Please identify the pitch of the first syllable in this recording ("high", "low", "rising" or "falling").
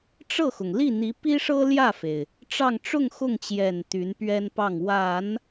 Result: falling